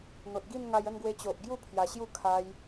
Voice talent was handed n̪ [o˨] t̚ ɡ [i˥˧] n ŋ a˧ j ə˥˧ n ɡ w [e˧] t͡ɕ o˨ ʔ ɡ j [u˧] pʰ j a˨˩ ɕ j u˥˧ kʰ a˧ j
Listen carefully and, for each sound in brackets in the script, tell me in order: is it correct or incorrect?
correct, correct, correct, incorrect

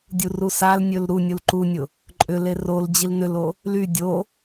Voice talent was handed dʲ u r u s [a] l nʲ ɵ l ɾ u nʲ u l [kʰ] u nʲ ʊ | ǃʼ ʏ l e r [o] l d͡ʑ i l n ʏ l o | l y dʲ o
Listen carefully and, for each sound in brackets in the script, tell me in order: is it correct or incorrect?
correct, incorrect, correct

